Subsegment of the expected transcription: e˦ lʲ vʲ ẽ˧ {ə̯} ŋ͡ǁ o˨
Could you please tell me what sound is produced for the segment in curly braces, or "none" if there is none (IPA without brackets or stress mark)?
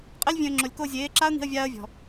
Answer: ə̯